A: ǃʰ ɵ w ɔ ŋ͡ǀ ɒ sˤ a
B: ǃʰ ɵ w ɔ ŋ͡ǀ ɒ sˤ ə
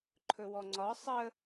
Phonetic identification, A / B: B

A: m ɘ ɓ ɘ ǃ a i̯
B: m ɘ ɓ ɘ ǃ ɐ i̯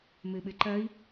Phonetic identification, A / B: B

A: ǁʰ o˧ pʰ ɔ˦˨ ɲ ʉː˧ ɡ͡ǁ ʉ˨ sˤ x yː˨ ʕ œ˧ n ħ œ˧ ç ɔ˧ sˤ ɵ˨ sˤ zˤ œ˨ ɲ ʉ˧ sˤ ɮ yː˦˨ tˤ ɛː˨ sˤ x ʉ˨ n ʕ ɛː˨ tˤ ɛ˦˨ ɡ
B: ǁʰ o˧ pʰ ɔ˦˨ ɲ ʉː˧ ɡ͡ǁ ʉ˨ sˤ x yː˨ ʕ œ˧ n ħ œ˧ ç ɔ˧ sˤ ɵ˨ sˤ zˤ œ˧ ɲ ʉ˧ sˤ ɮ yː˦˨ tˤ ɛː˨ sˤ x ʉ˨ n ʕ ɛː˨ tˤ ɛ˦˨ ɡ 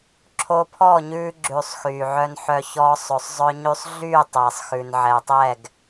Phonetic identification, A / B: B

